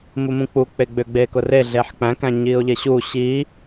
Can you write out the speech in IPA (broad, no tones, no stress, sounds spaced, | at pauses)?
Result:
m u m ũ k͡p u k͡p e ɡ͡b ʏ ɡ͡b eː k ʊ r e ɮ eː ħ k͡p æ̃ k æ̃ ɲ iː ʊ̯ ʎ e ɕ u ɕ i